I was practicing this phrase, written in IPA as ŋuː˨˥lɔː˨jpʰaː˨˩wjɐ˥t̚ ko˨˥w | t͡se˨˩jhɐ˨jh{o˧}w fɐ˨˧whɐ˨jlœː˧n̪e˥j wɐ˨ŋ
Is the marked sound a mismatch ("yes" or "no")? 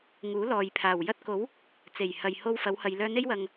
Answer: no